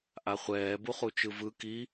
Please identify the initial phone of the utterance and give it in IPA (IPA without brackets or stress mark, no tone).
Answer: ʔ